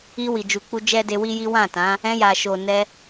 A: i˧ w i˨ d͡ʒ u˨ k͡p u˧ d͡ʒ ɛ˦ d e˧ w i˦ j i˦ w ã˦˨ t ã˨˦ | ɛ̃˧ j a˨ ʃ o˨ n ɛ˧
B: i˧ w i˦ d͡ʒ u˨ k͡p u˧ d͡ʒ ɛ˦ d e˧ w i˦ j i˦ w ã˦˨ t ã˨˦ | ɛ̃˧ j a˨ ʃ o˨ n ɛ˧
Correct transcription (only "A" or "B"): A